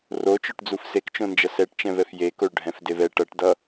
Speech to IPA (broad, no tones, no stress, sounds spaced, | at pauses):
r o t͡ʃ o ʈ d͡z u f s e k t͡ʃ õ n d͡ʒ ʌ s ɛ ʈ t͡ʃ ɛ̃ v ɛ f j e k o ɭ ɖʱ ɛ̃ f d e v ɛ ʈ ʌ ʈ d ʌ